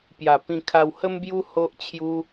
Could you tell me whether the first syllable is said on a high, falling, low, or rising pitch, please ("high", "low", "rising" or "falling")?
low